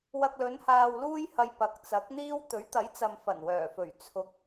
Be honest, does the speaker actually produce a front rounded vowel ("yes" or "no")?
yes